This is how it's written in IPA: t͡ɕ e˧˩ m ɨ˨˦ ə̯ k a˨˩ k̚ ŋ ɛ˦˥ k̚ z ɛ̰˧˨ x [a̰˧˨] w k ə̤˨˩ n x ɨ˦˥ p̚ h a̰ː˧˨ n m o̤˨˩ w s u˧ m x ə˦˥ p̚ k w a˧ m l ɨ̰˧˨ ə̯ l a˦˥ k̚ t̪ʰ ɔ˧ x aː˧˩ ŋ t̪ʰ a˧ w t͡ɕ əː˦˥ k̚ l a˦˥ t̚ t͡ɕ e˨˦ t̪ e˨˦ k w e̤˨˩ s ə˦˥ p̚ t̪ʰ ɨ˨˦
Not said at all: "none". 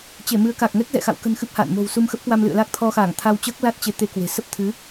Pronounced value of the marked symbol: a̰˧˨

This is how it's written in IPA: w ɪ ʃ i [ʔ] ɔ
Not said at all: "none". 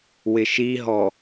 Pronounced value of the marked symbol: ɦ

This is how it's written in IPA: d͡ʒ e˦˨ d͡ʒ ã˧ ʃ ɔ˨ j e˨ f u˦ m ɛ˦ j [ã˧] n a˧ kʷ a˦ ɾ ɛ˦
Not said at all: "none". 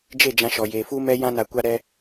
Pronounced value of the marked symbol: ã˦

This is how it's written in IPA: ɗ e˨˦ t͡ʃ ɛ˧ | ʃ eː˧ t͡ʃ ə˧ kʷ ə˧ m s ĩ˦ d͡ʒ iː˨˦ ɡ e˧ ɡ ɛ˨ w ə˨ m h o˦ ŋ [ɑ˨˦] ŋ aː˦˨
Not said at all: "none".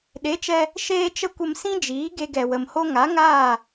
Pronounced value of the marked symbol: a˨˦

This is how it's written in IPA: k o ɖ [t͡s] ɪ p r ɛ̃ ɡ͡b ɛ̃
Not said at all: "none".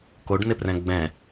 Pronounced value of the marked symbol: n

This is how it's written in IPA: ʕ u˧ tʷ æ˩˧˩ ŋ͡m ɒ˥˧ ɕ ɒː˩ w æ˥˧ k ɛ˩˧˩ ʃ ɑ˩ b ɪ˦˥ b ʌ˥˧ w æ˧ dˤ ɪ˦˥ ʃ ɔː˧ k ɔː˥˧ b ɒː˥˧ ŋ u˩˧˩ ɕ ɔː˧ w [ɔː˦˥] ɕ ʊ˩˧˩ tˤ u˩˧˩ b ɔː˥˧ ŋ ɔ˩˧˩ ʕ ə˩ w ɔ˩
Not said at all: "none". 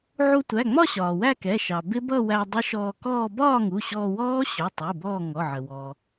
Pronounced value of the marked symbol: ɔː˦˥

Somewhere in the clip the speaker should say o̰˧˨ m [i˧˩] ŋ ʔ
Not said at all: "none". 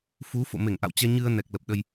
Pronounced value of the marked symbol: e˧˩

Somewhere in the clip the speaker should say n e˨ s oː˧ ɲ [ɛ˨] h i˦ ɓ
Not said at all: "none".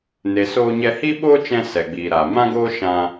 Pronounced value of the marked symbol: ɛ˧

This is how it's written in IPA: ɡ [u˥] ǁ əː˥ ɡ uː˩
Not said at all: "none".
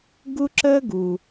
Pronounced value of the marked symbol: u˥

